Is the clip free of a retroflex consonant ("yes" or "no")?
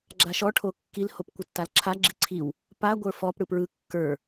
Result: no